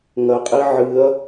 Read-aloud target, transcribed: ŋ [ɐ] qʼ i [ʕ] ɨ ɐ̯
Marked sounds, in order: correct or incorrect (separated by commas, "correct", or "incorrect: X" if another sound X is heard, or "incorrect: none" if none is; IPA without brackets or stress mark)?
correct, correct